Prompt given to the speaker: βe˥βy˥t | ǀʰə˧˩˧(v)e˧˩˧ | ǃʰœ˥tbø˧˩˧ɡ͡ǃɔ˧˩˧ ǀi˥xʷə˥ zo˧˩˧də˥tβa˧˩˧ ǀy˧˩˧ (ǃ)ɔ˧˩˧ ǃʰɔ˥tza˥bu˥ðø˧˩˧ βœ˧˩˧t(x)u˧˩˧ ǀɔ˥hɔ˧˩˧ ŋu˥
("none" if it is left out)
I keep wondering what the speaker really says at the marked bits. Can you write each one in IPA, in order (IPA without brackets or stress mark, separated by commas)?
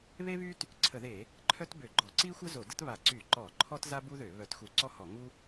ð, ǃ, x